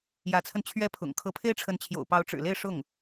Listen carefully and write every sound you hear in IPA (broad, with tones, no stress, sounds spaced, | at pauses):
j ä˧˥ t͡sʰ ə˧ n t͡ɕʰ ɥ ɛ˥ pʰ ʊ̰˨˩ ŋ kʰ ɤ˧˥ pʰ e˥ ɪ̯ ʈ͡ʂʰ ə˧˥ n t͡ɕʰ j o̰˨˩ ʊ̯ p ɑ˧˥ ʊ̯ ʈ͡ʂ ɻ̩˨˩ l e˥˧ ɪ̯ ʂ ʊ˥˩ ŋ